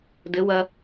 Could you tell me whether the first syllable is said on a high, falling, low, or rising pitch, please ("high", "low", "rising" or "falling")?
rising